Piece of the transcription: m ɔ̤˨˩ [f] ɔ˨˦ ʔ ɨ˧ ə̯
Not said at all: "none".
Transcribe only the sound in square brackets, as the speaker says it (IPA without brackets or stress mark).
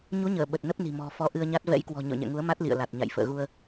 f